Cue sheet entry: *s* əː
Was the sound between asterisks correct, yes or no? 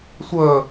no